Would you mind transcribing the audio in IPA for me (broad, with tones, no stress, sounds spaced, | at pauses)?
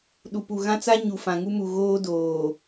ɗ u˨ p u˨ ɣ ã˦ t͡s a˦ ɲ u˨ f ã˨ ŋ u˦ m u˨ ɣ oː˦ d oː˨